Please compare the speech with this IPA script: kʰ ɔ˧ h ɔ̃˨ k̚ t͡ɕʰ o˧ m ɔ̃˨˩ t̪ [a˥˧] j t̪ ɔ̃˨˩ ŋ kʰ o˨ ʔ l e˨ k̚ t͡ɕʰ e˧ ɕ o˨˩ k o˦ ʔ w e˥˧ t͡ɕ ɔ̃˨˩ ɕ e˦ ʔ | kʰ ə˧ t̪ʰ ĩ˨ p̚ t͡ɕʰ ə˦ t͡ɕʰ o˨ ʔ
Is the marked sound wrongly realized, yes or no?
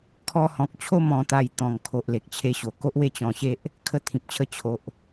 yes